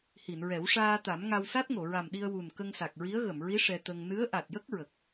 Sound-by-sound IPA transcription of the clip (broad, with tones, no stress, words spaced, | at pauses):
hi˨˩˨nɹɛ˨˩˦w ʂaː˧t̪a˨˩˦mŋa˧w sa˦˥t̚ŋo˨˩˨ɹa˨˩mɗi˧ə̯ wu˨˩nkə˧ŋsa˨˩k̚ɹi˧˥ə̯ ɣə˨˩˨mɹi˧˥ ʂɛ˧t̪ə˧ŋ nɨ˧˥ə̯ ʔa˨˩t̚jə˦˥k̚ ɹə˨˩k̚